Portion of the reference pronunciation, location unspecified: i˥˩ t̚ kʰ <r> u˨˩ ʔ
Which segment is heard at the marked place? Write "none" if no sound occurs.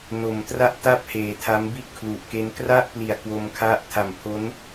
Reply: l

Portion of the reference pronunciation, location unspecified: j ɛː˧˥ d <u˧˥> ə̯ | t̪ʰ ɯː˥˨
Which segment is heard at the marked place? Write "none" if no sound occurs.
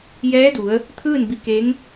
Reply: u˩˧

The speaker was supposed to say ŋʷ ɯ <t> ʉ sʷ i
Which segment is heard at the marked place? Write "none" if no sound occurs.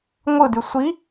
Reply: d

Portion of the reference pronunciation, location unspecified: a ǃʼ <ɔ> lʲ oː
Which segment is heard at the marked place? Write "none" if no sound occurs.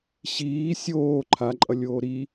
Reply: ʌ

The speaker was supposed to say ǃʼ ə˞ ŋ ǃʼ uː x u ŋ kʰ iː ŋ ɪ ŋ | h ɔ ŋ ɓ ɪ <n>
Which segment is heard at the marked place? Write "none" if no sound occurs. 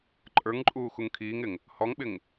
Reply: ŋ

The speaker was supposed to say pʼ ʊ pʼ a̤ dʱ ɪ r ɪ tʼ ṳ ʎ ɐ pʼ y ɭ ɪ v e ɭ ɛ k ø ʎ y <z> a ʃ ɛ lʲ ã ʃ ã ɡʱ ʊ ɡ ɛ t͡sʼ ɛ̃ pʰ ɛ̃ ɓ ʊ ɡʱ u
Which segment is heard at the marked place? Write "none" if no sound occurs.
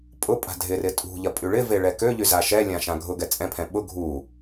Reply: z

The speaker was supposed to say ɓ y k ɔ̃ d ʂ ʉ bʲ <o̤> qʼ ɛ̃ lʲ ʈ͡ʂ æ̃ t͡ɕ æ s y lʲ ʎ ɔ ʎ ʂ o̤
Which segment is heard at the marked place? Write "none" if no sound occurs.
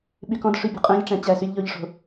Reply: o̤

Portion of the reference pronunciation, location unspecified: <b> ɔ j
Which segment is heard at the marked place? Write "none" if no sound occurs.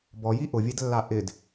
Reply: b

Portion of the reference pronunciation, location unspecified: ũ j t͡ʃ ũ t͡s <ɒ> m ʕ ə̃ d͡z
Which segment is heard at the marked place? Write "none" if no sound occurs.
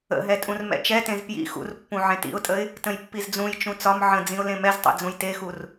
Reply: ɒ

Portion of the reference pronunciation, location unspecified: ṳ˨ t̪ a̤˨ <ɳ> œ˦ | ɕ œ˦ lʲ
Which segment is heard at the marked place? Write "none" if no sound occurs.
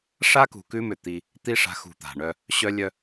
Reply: ɳ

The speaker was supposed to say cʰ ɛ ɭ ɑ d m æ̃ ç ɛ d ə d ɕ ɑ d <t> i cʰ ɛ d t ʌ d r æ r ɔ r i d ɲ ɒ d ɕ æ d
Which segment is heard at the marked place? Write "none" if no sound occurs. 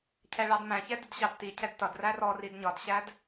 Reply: t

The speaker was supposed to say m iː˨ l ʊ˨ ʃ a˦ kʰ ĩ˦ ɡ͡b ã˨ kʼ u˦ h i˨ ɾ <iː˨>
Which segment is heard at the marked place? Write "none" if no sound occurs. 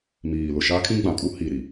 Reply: i˨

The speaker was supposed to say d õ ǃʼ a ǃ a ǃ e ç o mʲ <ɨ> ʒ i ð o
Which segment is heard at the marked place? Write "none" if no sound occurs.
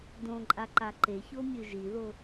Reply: ɨ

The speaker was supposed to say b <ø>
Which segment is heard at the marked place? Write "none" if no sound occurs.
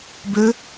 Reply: ø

